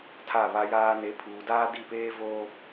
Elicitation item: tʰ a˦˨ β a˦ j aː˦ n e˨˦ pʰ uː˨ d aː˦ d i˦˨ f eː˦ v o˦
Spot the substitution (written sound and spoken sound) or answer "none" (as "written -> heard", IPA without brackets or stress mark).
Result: f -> p